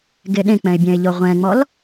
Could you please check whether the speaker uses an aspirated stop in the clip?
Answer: no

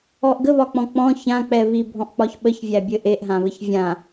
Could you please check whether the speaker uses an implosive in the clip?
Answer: yes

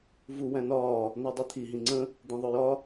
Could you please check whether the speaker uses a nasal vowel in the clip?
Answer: yes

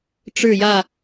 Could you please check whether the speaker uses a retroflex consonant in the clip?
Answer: yes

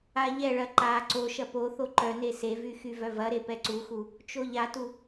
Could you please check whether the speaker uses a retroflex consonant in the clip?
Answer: yes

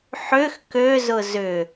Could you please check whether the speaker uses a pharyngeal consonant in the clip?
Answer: yes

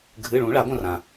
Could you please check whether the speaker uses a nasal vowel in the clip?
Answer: yes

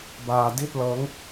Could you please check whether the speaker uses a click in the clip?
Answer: no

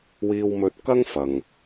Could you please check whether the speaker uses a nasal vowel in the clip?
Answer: no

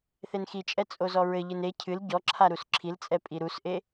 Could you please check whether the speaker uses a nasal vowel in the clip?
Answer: no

